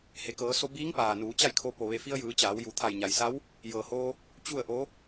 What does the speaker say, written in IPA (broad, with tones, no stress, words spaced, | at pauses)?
he˩kɤː˩˧so˧biː˧˥ŋ paː˩nuː˩˧t͡ɕa˥˨jkʰo˧ po˩ʋe˧˩fi˧ə̯jɯː˩˧ t͡ɕaː˩˧wju˩˧ t̪ʰa˧˩jɲa˩jsa˧˥w | jɤː˩hoː˧ | t͡ɕu˥˨ə̯ʔo˧˥